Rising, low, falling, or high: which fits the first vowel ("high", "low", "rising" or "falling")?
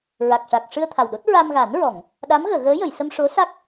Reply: low